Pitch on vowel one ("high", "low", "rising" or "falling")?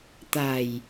low